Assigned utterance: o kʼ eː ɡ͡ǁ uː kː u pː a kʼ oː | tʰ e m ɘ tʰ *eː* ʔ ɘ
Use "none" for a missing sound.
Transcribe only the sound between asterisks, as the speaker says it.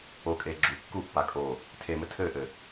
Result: ɘː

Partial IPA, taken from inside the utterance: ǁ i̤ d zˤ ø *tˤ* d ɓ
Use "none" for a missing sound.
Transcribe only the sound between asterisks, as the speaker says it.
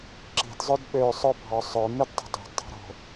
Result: none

